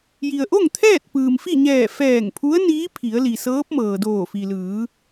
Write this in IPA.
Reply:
j i˩ ə̯ ʔ o˥˨ ŋ t̪ʰ ɛː˥˨ t̚ p ɯː˩ m f i˥˨ ɲ ɛː˧˩ f ɛː˧˩ ŋ pʰ u˧˥ ə̯ n iː˧˥ pʰ i˩˧ ə̯ l i˩ s ɤː˧˥ p̚ m ɤː˩ d oː˧˩ f i˩ l ɯː˩˧

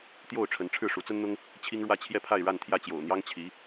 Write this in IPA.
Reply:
t̪ j o˥˩ ʊ̯ ʈ͡ʂʰ ə˧˥ n ʈ͡ʂʰ ɻ̩˥˩ ʂ u˧˥ t͡s ə˥ n n̪ ʊ˥ ŋ | t͡ɕʰ i˥ ŋ ɻ w ä˥˧ t͡ɕʰ j ɛ˥˧ pʰ a˥˧ ɪ̯ ɻ a˥˧ n t̪ʰ j ä˥˩ t͡ɕ j o̰˨˩ ʊ̯ n̪ j ɑ˥ ŋ t͡ɕʰ i˧˥

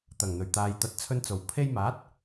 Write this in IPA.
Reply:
t̪ ɐ˨˩ ŋ n̪ ɵ˨˩ ɥ t̪ aː˨ j t̪ ɐ˨˥ t̚ t͡sʰ ɵ˧ n t͡s o˨˩ w pʰ e˧ j m aː˨˥ t̚

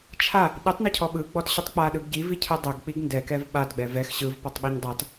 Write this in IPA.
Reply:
t͡ʃʰ a | ɗ i tˤ n ɯ cʰ ɔ ɓ ɯ ɡ͡b ɔ t ɕ ɯ tˤ k͡p a ɗ ɯ ɡ ɟ i v i cʰ ɯ dˤ ɛ ɡ k͡p i ɡ n d ɛ k ɛ v ɓ a d ɡ͡b ɛ v ɛ x ɕ ɯ v p ɔ tˤ ɓ ɛ ɲ dˤ a t

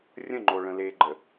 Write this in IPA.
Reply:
rʲ ə̃ ŋ͡ǃ o ɭ ə̃ l e ɡ͡ǃ ə

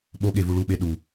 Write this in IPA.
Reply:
ɓ o ɠ e v u ɭ u ɓ e ɗ u

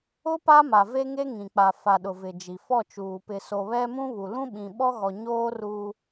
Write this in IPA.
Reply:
ʊ˦ p a˦ m a˨ v e˦ ŋ e˦ ŋ ĩ˨ k͡p a˨ f a˨ ɗ ʊ˨ v ɪ˨ d͡ʒ i˨ f ɔ˦˨ t͡ʃ uː˨ p ɪ˨ s o˨ β ɛ˦ m ũ˦ β u˨ l ũ˦ ɓ ĩ˨ ɓ ɔ˦ ɣ ɔ˨ ɲ oː˦ r uː˦

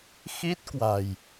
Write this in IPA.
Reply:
x i˦˥ t̚ k w a̤˨˩ j

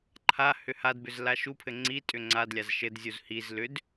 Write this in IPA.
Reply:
ǃʰ a h ʏ h a d b ʏ z l a ʃ u pʰ ɘ ŋ͡ǀ i tʼ ʏ ŋ͡ǀ a d lʲ a z ʃ ɘ d zʲ u z h i z l ʏ d

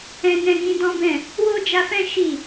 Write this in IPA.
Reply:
ɛ̃˧ n ɛ̃˧ ɡ ĩ˧ d ɔ̃˦ b ɛ̃˦˨ | w o˦ d͡ʒ a˧ f ɛ̃˦ ʃ i˦˨

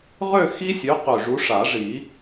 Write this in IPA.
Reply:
ʁ ø˥˧ x i˦˥ sʲ ø˨˦ q ø˨˩ ʐ u˨˦ ʂ a˨˩˦ ʐ i˨˩˦

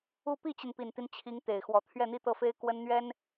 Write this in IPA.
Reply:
u˥˧ p i˥˩ t͡ɕ i˩ n p i˨˩ n t̪ i˦ n t͡ɕʰ i˧˥ ŋ t̪ e˨˩ ɪ̯ x w ɔ˧˥ t̪ʰ ɥ ɛ˥˧ n̪ i˥˧ t̪ ɤ˥˩ f e˥ ɪ̯ k w ə˥ n n̪ ɥ ɛ˥ n

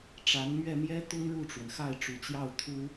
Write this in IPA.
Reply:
ʈ͡ʂ a˧˥ n m ɥ ɛ˥˩ m j ɛ˥ t̪ ʊ˥ ŋ ɻ u˥˩ ʈ͡ʂ w ə˩ n x a˥˩ ɪ̯ ʈ͡ʂ u˨˩ t͡ɕ j ɑ˥˩ ʊ̯ t̪ʰ u˥

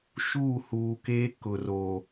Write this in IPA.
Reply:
ʃ uː˦˨ h uː˨ k eː˦ k ʊ˨ r o˨

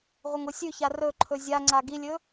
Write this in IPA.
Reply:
ʁʷ ɐ ŋ o sʲ ʉ ç a r ɵ ǃʰ ɵ zʲ a ŋ͡ǀ a ɡ i lʲ ɵ

